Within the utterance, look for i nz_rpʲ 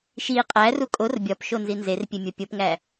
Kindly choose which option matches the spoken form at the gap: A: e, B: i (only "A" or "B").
A